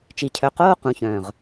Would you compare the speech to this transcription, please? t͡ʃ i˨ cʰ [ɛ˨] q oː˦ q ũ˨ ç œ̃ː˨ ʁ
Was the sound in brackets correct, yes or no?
no